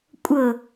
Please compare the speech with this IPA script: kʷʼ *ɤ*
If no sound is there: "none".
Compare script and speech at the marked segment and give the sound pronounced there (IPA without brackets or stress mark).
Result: ɤ